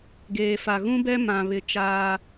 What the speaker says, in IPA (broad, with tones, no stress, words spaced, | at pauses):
ɡeː˨fa˨ɣũ˦bɛ˦ mã˨βɪ˨ t͡ʃaː˦